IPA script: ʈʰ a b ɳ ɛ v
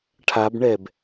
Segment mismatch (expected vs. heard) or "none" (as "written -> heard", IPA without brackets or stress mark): v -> b